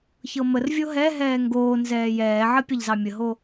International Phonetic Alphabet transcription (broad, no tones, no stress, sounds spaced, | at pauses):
ç ɤ m ə r vʲ o ɦ ɛ ɦ ɛː ŋ ɡ oː n z ɛː j ɛː ʕ ɐ pʲ ɐ ʎ z ɑ mʲ ə ɦ o